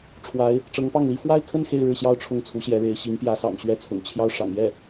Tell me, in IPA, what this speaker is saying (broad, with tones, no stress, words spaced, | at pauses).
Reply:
ʈ͡ʂʰwa˧˥ɪ̯ | ʈ͡ʂɤ˧˥ŋpɑ˥˩ŋli˥ fwa˥˧ɪ̯kʰə˥˧n xe˥˧ɪ̯ɻɻ̩˥˩ɕjɑ˥ʊ̯ ʈ͡ʂʰʊ˥ŋt͡sʰu˧˥ɕjɛ˧˥ɻe˧˥ɪ̯ ɕi˧˥ŋpjä˧˥sɑ̰˨˩ŋ ɕɥɛ˥˩ t͡sʰʊ̰˨˩ŋt͡ɕʰjɑ˥˩ʊ̯ ʂɑ̰˨˩ŋjɛ˥˩